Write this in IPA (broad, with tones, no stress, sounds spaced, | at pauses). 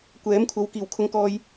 kʷ ɛː˨˥ m kʷʰ ɐ˨˥ w k iː˨˩ w kʰ ʊ˨ ŋ k ɔː˨ j